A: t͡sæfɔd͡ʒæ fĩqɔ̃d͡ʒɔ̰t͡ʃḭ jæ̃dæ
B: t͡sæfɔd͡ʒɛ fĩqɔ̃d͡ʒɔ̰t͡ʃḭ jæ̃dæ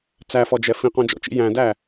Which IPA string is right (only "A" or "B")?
B